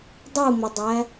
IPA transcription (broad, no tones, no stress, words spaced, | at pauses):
dˤumədˤæ